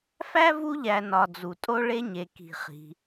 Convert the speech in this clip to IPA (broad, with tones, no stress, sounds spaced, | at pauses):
f æ˥ v u˦ ʎ æ˨ n ɒ˨ d͡z u˩ tʼ o˥ ɭ e˥ ɲ e˩ k i̤˩ χ i̤˩